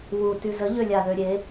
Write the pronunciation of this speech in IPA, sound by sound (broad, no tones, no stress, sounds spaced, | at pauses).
w u t y z ə ʎ ø lʲ a ð ø ɾʲ e